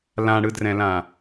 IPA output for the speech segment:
l ã ɽ ɯ d r ɛ̃ l ã

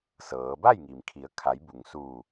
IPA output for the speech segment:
s ɤː˩˧ b a˥˨ j ŋ i˩ m kʰ i˩˧ ə̯ kʰ a˩˧ j b u˩ ŋ s uː˧˩

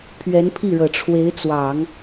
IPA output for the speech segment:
pʰ ɥ ɛ˧˥ n pʰ i˥˩ ɻ ɤ˨˩ ʈ͡ʂʰ w e˧˥ ɪ̯ t͡s w ɑ˨˩˦ ŋ

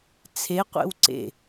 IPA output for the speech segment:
t͡sʰ e qʷ ḛ w ǀ ḛ

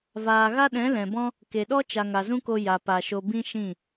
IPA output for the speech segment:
v aː˨ ɣ a˦ ɗ ɛ̃˨˦ l ɛ̃˨ b ɔ̃˦ | k e˨ ɗ ɔ˦ t͡ʃ a˨ ŋ a˨ z ũ˦ k o˧ j a˨ p a˧ ʃ o˦ b ĩ˦ ʃ ĩ˦˨

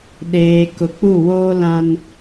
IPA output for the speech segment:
ɗ eː˨ k ʊ˨ k͡p u˦˨ w oː˦ l ã˦ n

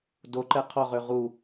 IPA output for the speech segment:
d o ǃ ɛ qʰ ɔ ʁ ø ʁ u

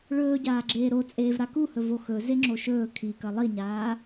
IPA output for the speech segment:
ɭ ɵː ɟ aː ɡ͡ǁ eː ɾ o t͡sʼ eː v ɾ a k u h ɵ v o x ɵ z e ŋ͡ǁ o ʃ ɵː kʰ i k ɐ lˠ i ɲ aː

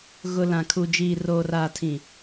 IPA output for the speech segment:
ɣ ʊ˨ l ã˨ kʰ u˨ d͡ʒ iː˨ r oː˨ r aː˨ tʰ ĩ˨

